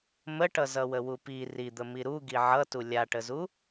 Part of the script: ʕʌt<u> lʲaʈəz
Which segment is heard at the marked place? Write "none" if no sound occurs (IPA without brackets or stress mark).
u